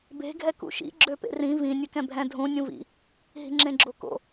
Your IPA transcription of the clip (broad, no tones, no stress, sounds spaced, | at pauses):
b e̤ ɡʱ ɛ k ṵ ʃ ḭ ɡ͡ǁ ø p ḛ r ĩ v ĩ nʲ ø k ɛ̃ bʱ ɛ̃ dʱ ũ nʲ ũ v ḭ | ɦ i̤ ŋ͡ǁ ẽ ɡ͡ǁ o k o̰